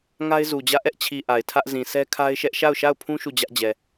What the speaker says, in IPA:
ŋ a˦ ɪ̯ z u˨ d͡ʑ ä˦˨ ʔ ɛ˦ ʔ t͡ɕʰ i˨ ʔ a˨ ɪ̯ tʰ ä˦ ʔ z ĩ˨ sʰ ɛ˦ kʰ a˦ ɪ̯ ʃ ɛ˦ ʔ ʃ a˦˨ ʊ̯ ʃ a˦˨ ʊ̯ pʰ ũ˦ ʃ u˦˨ d͡ʑ ä˦ ʔ d͡ʑ ɛ˨

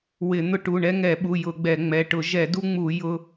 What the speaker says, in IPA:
w ɪ˧˩˧ n̪ ʊ˦ ʈ u˩˧˩ ɳ ɛ˦ ŋ ɛ˧˩˧ ɓ u˩˧˩ j ʊ˧˩˧ ɡ͡b ɛ˧˩˧ ŋ͡m ɛ˩˧˩ ʈ ʊ˧˩˧ ʒ ɛ˧˩˧ d u˦ ŋ͡m u˧˩˧ j ʊ˦

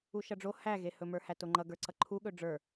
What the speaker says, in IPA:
u ʃ ʌ ɖ͡ʐ o h æ ɣ e h ɵ m ə˞ h æ t o ŋ͡ǃ ʌ ɡ ə˞ ǀ ʌ ǃʰ u ɠ ɵ ɖ͡ʐ ə˞

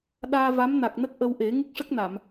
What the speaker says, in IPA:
ɗ aː˧ v a˧˥ m n a˨˩ k̚ n ə˦˥ k̚ ʔ ə˧ w ʔ e˨˩˦ ŋ ɨ˦˥ k̚ ʂ ə˦˥ k̚ n a˨˩˨ m

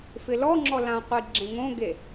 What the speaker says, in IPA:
f ɪ l ɔ ŋ͡ǁ ɔ l ã qʷ i ɡ͡ǁ ẽ ŋ õ ɡ e

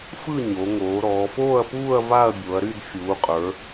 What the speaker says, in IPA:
f ɯ˥˧ ɲ o˩˧ ŋ oː˩˧ ɾ ɔː˩˧ f oː˥˧ ɐ̯ p uː˥˧ ɐ̯ v a˥˧ ɐ̯ bʲ o˩˧ ɐ̯ ɾ y˥˧ d fʲ uː˩˧ qʼ ə˞˩˧

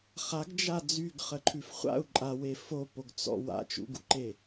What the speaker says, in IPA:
χ a ɡ d͡ʒ a d͡z y ɡ χ ə ǃʰ ʉ f χʷ a̰ u̯ ǃʼ a w e f o p o ɡ t͡s ɔ̰ w a̰ t͡ʃ ṵ ɡ ṵ ǃ e

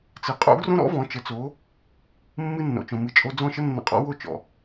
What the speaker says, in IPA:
t͡s ɨ˩ qʼ o̰˥ ɡ r õ˥ ɾ ɔ̰˥ v ɔ̃˩˥ t͡ʃ ə˩˥ t͡s o˩˥ | mː ɨ˧ nː o̰˩ t͡ʃ õ˩ m ɨ˩˥ t͡ʃʼ o˧ d͡z ɔ̃˥˩ ʃ ə˥ nː ə̰˧ qʼ ɔ̰˥ w o˥˩ t͡ʃ ɔ̰˩

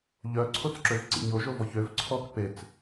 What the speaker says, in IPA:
ʎ œ ǀʰ o t͡s ǁ ø v ǀ ḭ ɲ o ʒ o v ɔ ç ø v ǀʰ ɔ k p e t͡s

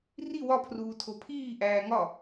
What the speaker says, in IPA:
r i w ɒ pʰ r uː tʰ o pʰ iː ʔ æː ŋ ɒ

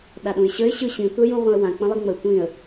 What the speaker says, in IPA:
ɗ a ɗ ũ ɪ̯ ɕ ə ɪ̯ ɕ ɯ ɕ ĩ tʷ ɛ j ũ ʁʷ ɛ̃ ə̯ w ã k͡p ə̃ lˠ i ŋ͡m ə tʷ ĩ ə̯

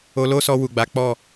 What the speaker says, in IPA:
o˧ l o˦ s ɔ˧ w u˨ ɡ͡b a˨˦ k͡p ɔ˦˨

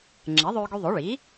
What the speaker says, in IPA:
ŋ͡ǁ ɛ˩˥ ðˤ øː˧ ɡ y˧ ðˤ o˩˥ ɭ i˩˥

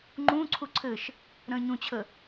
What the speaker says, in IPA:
ŋ͡ǃ ũː ǀʰ u ǀʰ ɘ ʃ | ɾ ə̃ː ɲ ũ t͡ɕʰ ə

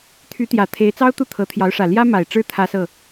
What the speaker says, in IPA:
t̪ʰ y˧˥ t̪ j ä˨˩ t̪ʰ e˧˥ ɪ̯ t͡s ɑ˥ ʊ̯ t̪ u˥˩ t̪ʰ ɤ˧˥ t̪ʰ j ɑ˧˥ ʊ̯ ʂ ä˨˩ l j ä˥ m a˨˩ ɪ̯ ʈ͡ʂ ɻ̩˥˩ t̪ʰ ä˥ s ɤ˥˩

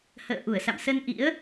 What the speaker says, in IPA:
h ə̰ː˧˨ ʔ u˧˩ ə̯ s a̰˧˨ m s ə˧ n ʔ ḭ˧˥ ə̯

